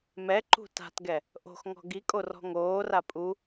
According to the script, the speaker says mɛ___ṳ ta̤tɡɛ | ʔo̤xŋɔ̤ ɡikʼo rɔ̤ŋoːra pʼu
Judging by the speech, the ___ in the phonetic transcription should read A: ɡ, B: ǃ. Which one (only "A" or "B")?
B